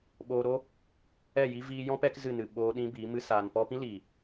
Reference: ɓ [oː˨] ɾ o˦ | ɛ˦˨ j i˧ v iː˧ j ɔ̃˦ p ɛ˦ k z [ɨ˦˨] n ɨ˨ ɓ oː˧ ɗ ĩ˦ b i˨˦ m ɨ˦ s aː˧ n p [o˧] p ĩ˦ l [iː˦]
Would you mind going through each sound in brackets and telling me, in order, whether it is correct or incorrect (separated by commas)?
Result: incorrect, correct, incorrect, incorrect